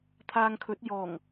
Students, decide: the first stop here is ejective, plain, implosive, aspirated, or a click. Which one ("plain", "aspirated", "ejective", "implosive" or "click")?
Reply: aspirated